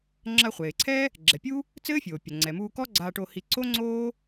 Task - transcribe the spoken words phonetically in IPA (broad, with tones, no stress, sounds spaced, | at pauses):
ŋ͡ǁ ɐ˧ χʷ eː˩ ǀʰ ɛ˥ | ɡ͡ǁ ɛ˩ pʲ u˥ | t͡s ɘː˥ fʲ oː˩ pʲ ɐ˩ ŋ͡ǀ ɛ˩ m uː˧ k ɔ˥ ɡ͡ǀ aː˧ ʈ o˧ h i˧ ǀ o˥ ŋ͡ǀ oː˥